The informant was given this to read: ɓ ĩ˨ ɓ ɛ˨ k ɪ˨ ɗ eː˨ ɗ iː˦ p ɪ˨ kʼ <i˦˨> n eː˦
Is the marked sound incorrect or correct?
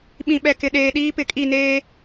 correct